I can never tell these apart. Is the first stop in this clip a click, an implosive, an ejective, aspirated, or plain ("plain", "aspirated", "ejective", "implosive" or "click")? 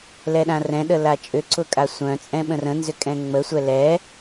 implosive